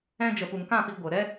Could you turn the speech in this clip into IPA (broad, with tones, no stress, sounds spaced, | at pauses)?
ɛ̃˧ d͡ʒ ə˨ p u˨ ŋ k ã˦˨ p i˧ ɡʷ ə˨ ɾ ɛ˦